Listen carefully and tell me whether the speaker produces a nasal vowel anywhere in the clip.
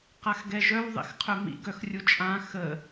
yes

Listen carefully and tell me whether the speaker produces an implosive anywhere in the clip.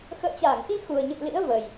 no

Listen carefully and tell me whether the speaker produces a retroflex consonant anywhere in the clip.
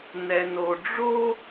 yes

